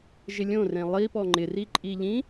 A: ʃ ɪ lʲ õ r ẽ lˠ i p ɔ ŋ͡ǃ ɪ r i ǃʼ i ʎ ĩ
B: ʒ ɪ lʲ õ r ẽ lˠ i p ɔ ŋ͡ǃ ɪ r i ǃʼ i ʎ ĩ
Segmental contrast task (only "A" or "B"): B